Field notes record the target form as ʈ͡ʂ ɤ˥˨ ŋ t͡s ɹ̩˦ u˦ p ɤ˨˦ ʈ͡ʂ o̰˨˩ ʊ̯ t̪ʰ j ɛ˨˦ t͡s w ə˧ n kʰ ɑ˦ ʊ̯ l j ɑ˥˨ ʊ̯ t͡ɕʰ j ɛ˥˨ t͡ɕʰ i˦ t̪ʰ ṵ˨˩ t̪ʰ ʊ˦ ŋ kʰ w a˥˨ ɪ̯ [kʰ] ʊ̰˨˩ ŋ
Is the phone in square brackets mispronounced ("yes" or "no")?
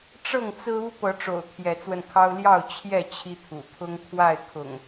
no